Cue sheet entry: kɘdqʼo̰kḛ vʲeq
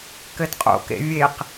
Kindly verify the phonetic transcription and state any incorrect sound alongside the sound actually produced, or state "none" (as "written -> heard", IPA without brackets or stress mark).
none